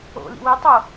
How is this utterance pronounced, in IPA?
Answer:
o̰lḭ wi tˤo

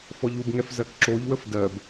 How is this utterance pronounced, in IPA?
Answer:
fɔʎubŋɛf zɜkǁoʎwəf dɜb

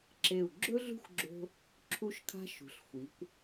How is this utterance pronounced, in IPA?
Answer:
ǁe˧˩u̯ ɡ͡ǁɵ˥ɮṳ˥˧xʷɡ͡ǁo̤˧ | ǁʰu˧ʃkʰa̤˧ ʃṳ˩˧ɬxʷi˩˧kʷ

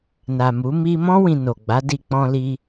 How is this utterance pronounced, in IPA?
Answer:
na˨mu˨˦ mi˧mɔ̃˦ wĩ˧ no˨ ɡ͡ba˨˦di˧k͡pɔ̃˧ li˧

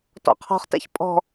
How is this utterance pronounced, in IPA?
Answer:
tɔ̰qʰɔ̤χtɛ̰ç pʼɔ̤

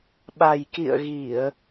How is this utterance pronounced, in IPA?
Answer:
ɓa˨˩jkḭ˧˨ə̯ɣi˧˩˨ə̯

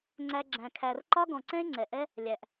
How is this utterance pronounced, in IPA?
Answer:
ŋ͡ǀæ˧ɡ͡ǁæ̃˨ kʰæ˨rǃɒ˦ɡɔ̃˨ǀɛ̃˦e̯ ŋ͡ǀɛ˨ʔɛ˦ | lʲæ˨ʔ

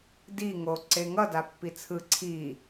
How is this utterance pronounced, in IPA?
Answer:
di ŋo ǀeŋʌ dapːit͡sʰɯ ǀʰi

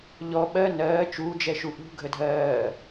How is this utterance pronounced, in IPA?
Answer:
ʎɔ ɓɜ nɜː t͡ʃuːd͡ʒɛʃu ʔṳ ɡʱədʱɜː

